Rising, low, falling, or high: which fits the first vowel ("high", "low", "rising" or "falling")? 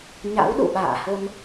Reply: rising